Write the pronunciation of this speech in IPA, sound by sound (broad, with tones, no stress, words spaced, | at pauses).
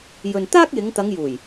jɵ˨nt̪aː˥k̚jɪ˨˧ŋt̪ɐ˨˧ŋ juː˨˩j